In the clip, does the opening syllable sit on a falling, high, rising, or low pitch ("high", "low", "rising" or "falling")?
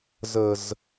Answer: low